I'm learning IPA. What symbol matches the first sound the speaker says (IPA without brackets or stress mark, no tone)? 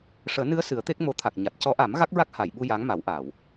ʂ